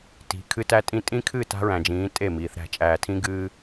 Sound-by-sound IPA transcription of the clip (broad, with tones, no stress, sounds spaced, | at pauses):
t i̤˨ kʰ ɨ˦ t æ˦ tʼ ĩ˦ tʼ ĩ˦ kʰ ɨ˦˨ t a̤˦ ɹ æ̃˨ d͡ʒ ĩː˨˦ tʼ e˦˨ m iː˨ θ ɾ æ̤˦˨ t͡ʃʼ æː˨ tʰ ĩ˦ ɡ ɨː˦